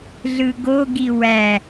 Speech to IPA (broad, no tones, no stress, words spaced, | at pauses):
ɮɯɡoɡi wæ